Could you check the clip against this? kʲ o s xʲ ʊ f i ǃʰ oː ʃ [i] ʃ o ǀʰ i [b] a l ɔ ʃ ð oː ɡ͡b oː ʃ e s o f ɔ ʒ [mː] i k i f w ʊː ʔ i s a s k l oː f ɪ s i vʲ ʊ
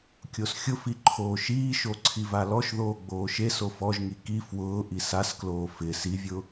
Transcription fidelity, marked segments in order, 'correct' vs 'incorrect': incorrect, incorrect, incorrect

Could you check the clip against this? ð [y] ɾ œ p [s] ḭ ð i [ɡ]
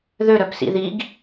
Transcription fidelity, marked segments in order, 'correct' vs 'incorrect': incorrect, correct, correct

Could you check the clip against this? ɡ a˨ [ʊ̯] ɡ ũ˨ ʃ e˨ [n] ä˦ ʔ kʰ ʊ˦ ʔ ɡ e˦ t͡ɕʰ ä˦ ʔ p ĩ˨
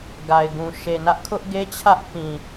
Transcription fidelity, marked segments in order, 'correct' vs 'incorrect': incorrect, correct

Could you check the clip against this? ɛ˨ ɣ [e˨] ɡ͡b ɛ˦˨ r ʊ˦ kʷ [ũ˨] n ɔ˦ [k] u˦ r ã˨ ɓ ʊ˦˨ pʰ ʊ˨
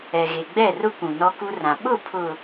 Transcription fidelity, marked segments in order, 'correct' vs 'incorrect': correct, correct, correct

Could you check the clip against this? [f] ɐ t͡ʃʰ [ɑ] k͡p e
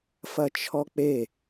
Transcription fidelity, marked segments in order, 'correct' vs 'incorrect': correct, incorrect

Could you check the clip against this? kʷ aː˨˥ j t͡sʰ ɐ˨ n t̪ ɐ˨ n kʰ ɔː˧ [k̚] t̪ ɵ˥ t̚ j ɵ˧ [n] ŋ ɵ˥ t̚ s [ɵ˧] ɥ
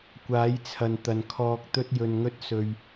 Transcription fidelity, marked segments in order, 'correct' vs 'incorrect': correct, correct, correct

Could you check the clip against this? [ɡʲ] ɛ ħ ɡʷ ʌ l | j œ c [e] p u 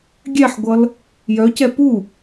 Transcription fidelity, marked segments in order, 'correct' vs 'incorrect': correct, incorrect

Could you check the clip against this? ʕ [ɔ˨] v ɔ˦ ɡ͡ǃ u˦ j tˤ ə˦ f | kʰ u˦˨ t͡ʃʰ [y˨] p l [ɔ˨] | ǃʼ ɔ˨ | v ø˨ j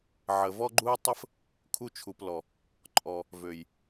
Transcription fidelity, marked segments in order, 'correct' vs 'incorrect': incorrect, incorrect, correct

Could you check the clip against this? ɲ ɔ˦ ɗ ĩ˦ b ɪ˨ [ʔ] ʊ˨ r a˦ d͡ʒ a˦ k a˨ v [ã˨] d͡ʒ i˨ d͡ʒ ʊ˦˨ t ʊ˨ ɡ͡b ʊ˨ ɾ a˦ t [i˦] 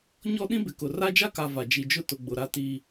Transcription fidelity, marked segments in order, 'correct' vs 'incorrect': incorrect, incorrect, correct

